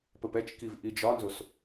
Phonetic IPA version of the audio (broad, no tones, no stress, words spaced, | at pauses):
pəpɛt͡ʃkiv ʔid͡ʒɒnzos